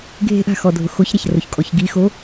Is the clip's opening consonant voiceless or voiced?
voiced